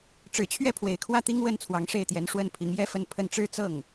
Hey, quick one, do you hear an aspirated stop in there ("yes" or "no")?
yes